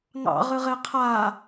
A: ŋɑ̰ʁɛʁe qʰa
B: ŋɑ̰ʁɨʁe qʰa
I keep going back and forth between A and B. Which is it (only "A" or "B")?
B